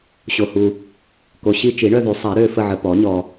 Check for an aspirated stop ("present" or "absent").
absent